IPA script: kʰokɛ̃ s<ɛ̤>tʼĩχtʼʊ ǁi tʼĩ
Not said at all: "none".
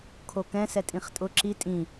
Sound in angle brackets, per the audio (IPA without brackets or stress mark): ɛ